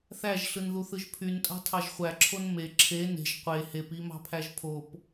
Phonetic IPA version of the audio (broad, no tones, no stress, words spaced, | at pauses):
θæʒɬɯnðuθɯʒ pʰyntʼɑ̤tʰɑʒ χʷæǁʰon me ǁʰe ne̤ʒ qʷe hepimɑ̤pʰæʒ pʰop